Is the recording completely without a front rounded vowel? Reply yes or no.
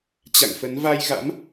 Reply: yes